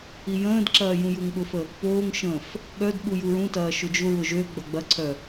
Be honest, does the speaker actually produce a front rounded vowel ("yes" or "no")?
yes